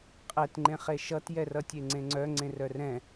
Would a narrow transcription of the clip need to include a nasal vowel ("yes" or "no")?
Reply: yes